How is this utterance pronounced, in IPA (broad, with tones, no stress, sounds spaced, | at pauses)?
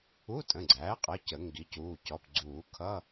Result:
u˧˥˧ tʼ ə̃˩˧˩ ɡ͡ǀ æː˩˥ qʼ ʌ˩˧˩ c ə˨˩˦ ŋ ɡ i˩˥ c uː˩˧˩ c ɔ˩˧˩ p ɡ͡ǀ uː˨˩˦ kʰ ʌ˧˥˧